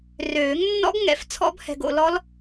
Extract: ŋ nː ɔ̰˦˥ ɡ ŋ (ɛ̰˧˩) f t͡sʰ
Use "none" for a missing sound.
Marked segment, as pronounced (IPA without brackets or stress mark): ɛ̰˧˩